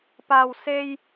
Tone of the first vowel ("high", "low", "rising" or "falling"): high